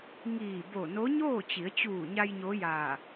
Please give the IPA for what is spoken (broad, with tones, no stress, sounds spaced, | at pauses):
ŋ iː˧˩ b o˧˩ n o˧˥ ɲ oː˥˨ t͡ɕ i˩˧ ə̯ t͡ɕ uː˧˩ ɲ a˧ j ɲ o˧˥ j aː˧˩